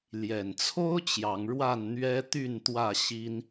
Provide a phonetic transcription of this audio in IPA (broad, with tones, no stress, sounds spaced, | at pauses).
l j ɛ˨˩ n t͡sʰ o˦ ʊ̯ t͡ɕ j ɑ˨˦ ŋ ɻ w a˥˨ n n̪ ɥ ɛ˦ t̪ y˥˨ n t̪ w ä˥˨ ɕ i˦ n